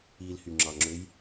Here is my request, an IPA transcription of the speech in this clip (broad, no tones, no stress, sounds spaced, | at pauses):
i l h y ŋ͡ǁ ɑ ŋ͡ǁ ø j